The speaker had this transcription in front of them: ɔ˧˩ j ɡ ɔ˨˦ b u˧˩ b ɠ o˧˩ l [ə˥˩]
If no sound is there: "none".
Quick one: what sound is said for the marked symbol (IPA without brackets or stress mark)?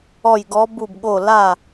a˥˩